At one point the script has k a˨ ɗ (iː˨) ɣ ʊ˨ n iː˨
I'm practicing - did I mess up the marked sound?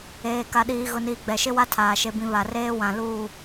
no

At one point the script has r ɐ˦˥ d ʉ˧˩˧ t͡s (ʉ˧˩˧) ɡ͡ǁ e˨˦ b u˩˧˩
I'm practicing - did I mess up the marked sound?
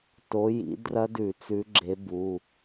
yes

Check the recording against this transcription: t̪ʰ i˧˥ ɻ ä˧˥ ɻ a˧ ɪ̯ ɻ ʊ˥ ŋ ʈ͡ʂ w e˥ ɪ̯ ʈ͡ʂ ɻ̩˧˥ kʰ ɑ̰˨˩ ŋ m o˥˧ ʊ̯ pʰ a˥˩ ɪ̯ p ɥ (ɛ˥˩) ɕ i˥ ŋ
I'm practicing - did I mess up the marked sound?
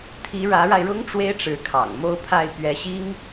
yes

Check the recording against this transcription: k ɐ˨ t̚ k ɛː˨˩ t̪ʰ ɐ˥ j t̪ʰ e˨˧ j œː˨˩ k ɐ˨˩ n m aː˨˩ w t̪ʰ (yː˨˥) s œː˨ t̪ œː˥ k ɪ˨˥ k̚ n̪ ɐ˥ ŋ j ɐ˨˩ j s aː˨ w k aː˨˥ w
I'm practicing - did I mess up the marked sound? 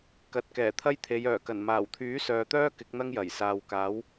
no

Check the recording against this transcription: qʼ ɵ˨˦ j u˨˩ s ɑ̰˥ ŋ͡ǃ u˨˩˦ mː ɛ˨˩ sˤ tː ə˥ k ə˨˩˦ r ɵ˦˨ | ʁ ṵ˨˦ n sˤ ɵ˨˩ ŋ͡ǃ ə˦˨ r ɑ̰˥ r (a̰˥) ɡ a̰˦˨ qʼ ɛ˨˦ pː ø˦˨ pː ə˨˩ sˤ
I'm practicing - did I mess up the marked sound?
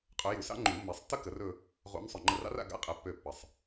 yes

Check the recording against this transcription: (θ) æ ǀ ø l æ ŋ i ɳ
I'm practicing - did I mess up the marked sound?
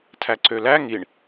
yes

